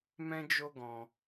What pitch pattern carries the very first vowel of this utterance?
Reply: high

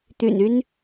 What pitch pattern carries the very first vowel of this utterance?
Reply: low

